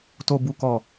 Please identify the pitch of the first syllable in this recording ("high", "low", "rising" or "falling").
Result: low